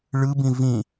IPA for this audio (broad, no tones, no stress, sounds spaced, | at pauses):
ɭ ɯ b ĩ v ĩ